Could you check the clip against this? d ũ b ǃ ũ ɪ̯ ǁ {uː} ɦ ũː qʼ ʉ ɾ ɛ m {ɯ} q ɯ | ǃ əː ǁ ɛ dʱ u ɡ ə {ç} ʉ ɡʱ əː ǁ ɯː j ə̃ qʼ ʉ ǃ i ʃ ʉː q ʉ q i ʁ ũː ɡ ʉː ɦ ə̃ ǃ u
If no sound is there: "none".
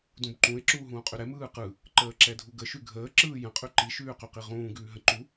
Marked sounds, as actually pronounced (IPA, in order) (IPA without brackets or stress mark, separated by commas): uː, ɯː, ʃ